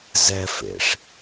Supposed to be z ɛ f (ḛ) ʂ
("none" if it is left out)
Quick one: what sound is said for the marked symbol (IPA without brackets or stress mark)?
ḛ